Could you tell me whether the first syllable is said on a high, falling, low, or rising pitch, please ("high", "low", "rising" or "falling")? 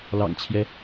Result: low